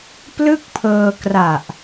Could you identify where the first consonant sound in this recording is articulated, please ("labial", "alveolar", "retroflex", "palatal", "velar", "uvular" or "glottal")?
labial